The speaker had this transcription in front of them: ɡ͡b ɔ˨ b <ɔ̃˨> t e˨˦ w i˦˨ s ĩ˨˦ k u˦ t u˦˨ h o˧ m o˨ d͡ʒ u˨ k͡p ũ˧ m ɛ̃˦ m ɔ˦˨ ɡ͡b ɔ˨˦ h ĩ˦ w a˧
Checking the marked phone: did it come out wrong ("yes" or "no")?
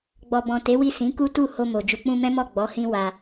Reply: no